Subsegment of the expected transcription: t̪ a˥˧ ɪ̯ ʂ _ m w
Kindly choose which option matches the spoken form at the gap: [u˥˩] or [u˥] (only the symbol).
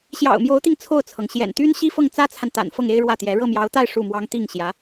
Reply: u˥˩